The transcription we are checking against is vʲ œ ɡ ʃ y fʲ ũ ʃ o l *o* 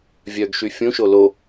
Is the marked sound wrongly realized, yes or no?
no